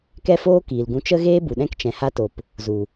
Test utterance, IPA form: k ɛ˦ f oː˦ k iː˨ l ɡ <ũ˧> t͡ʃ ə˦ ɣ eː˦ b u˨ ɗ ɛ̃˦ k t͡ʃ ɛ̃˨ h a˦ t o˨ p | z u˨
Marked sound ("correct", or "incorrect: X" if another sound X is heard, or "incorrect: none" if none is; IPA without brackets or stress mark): correct